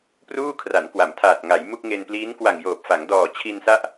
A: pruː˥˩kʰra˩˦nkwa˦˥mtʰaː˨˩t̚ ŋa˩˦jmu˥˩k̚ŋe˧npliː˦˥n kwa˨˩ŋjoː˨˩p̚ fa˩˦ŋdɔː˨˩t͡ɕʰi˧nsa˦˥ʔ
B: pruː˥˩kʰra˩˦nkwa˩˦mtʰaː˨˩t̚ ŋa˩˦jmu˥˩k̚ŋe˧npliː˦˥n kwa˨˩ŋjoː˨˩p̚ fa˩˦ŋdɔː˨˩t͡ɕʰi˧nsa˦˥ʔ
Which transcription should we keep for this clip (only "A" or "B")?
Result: B